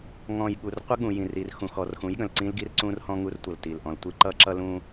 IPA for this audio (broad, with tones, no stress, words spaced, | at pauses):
ŋɔ̃˨j ɠu˨r qʷə˦ɠũ˨jĩ˨ri˨r xũ˨xɔ˨rxũ˨˦j ɠə̃˨lǀĩ˦lɡi˦rǀũ˦r hɔ̃˦ŋu˦rtʷʌ˨lti˨l ʔɔ̃˨ltʷi˦ ǃʌ˦ǁʌ˦lũ˦